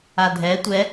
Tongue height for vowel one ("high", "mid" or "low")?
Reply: low